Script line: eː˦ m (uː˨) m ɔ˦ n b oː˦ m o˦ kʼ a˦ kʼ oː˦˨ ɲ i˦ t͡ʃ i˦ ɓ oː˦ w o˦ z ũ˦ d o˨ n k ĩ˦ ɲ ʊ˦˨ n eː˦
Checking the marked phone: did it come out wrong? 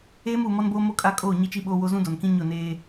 no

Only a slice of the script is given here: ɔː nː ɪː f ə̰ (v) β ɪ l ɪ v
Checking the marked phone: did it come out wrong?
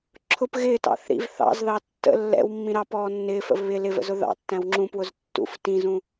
no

